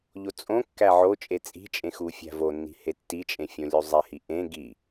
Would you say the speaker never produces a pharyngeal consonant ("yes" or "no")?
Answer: no